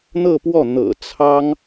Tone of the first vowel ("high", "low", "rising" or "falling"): falling